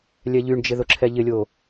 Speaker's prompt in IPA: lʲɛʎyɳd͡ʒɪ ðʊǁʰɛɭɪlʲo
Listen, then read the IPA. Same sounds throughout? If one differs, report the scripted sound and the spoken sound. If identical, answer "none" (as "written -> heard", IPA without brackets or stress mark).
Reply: ɭ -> ʎ